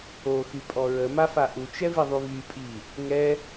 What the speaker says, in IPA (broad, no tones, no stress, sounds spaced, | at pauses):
o x y pʼ ɔ ɹ ə m a f a ʔ u t͡ʃ ɛ v i ðˤ y v y pʼ i | ŋ ɛ